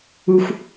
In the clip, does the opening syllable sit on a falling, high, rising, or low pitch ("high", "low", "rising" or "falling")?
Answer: high